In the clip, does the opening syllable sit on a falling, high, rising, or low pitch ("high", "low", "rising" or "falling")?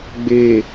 low